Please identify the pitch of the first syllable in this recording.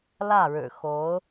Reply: falling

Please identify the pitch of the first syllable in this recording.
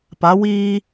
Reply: rising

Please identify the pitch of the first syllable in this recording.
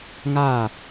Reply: falling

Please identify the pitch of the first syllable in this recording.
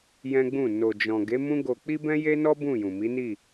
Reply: high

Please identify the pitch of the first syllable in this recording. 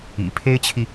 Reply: low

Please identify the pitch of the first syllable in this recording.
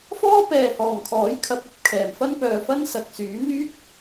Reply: high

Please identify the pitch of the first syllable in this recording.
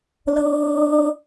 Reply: high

